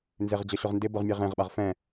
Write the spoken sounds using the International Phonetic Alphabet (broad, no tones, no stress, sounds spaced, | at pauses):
n z ɪ ʁ d͡ʑ ʌ ɕ ʊ ʁ n d ɪ b ʊ ʁ mʲ e ʁ ẽ ʁ ɓ a ʁ f ɛ̃